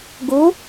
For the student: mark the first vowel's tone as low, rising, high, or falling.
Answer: rising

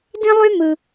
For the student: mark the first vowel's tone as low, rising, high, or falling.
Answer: high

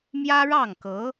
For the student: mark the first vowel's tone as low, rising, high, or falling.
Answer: high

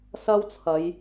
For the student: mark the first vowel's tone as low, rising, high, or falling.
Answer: high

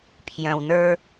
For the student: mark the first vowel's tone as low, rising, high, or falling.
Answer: low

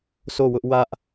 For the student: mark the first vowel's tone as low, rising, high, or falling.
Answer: falling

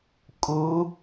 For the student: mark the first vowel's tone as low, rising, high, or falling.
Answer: rising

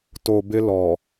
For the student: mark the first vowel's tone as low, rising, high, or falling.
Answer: low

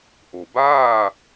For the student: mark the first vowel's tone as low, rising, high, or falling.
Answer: low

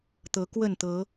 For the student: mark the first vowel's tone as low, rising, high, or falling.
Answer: rising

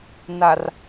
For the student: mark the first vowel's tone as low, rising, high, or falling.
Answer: low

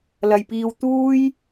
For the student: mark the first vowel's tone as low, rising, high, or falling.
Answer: low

